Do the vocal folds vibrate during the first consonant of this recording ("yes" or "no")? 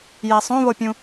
yes